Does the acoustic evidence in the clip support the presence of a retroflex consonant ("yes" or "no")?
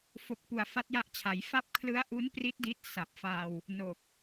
no